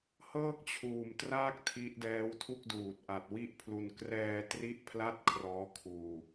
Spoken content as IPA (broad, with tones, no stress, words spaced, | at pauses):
hɤː˥˩k̚t͡ɕʰuː˨˩mtraː˥˩k̚ tʰi˦˥ʔdɛː˦˥w tʰu˥˩k̚duː˨˩t̚ʔa˨˩t̚ wi˥˩ʔpʰlu˧n krɛː˧ tri˥˩ʔpʰla˥˩t̚kʰrɔː˦˥ kʰuː˧